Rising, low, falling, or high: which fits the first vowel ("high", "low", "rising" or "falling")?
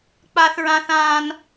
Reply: high